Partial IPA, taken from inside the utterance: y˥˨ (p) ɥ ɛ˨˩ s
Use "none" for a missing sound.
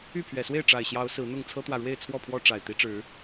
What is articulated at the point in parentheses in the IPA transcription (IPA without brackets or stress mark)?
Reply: pʰ